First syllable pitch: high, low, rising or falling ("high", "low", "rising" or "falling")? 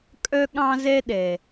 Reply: high